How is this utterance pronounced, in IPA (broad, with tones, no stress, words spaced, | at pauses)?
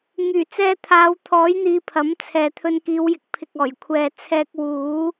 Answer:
ŋyː˨˩t͡sɛː˧t̪ʰaː˨˧wt̪ʰɔː˨˥j n̪iː˧pʰɐ˨˥mt͡sʰɛː˨ t̪ʰɵ˧nkiː˨˧wjɪ˨˥k̚pʰɪ˨k̚ ɔː˨˩jkʷʰɛː˨t͡sʰɛː˧k̚ wuː˨˥